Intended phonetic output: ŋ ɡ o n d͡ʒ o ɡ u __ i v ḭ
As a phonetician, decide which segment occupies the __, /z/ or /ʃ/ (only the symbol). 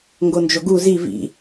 z